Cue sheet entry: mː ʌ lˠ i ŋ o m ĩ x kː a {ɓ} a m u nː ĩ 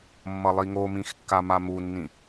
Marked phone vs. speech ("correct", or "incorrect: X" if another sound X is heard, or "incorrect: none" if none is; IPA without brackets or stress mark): incorrect: m